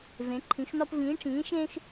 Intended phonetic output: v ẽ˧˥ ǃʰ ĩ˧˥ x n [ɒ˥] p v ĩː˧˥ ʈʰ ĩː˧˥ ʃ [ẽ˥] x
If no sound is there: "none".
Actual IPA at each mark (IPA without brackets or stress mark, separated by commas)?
ɒ˥, ẽ˥